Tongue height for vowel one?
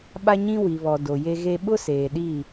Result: low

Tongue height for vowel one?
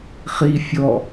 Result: high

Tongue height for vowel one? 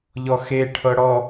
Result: mid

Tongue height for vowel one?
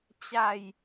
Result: low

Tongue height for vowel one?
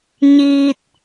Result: high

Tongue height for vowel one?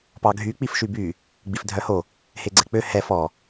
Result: low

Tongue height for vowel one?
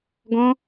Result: mid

